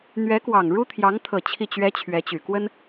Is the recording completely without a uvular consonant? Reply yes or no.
yes